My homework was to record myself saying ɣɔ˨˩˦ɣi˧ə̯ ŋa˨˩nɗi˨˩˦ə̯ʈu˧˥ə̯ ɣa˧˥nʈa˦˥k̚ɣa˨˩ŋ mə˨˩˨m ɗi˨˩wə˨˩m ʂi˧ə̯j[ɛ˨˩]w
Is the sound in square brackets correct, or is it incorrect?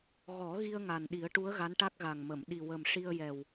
correct